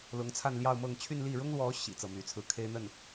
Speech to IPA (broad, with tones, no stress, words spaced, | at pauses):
lʊ˧˥ŋt͡sʰa˥˧nljɑ˥˧ʊ̯mɤ˥˧ŋ t͡ɕʰy˥˧nli˥˩ ɻʊ˥ŋlwɔ˧˥ ɕḭ˨˩ t͡sɤ˥˩my˧˥t͡sʰɹ̩˥˩ kʰe˥ɪ̯n̪ə˥˩n